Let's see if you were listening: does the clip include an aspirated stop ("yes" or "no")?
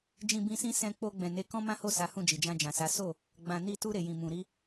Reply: no